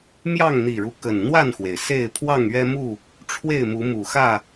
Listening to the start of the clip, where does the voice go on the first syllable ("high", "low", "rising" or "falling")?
falling